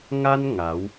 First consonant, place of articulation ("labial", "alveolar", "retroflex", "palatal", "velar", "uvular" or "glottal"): velar